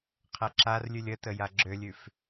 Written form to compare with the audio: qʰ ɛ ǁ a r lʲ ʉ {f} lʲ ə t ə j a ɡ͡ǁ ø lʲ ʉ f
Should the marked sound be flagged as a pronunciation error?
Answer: yes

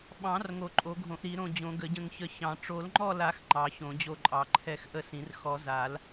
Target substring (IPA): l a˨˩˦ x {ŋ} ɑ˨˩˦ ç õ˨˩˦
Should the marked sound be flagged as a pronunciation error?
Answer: yes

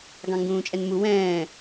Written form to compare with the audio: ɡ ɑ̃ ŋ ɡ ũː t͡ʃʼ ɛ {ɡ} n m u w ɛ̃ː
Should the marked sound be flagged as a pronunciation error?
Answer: yes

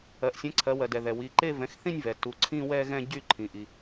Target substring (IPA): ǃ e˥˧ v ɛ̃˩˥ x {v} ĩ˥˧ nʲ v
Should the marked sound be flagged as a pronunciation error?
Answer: yes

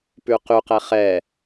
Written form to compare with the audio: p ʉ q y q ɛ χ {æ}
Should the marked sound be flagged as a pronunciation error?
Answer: yes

